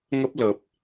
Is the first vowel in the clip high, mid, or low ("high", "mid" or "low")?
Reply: mid